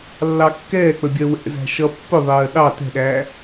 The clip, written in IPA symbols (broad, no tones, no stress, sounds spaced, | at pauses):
lː ɑ kː ɛː k͡p ə bʲ ɜ w ɛ̰ z æ̤ ʃ ʌ pː ʊ ðˤ ɜː ɗ ɑ t ɛ̤ ɗ æː